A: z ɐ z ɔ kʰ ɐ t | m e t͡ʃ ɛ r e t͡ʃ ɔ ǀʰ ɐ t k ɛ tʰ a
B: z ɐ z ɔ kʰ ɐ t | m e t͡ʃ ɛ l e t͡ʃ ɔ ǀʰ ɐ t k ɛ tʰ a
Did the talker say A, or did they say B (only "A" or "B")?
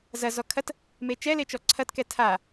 B